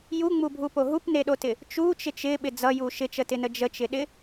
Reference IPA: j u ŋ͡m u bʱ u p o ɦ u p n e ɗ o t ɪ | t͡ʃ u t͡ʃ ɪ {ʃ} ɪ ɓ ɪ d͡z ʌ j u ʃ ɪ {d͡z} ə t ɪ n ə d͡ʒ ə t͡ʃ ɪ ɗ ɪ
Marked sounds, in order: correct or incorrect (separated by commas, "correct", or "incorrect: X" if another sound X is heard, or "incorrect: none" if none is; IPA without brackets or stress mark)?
incorrect: t͡ʃ, incorrect: t͡ʃ